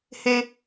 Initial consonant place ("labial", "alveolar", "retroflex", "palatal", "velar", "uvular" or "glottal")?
glottal